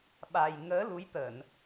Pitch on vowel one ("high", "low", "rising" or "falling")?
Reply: low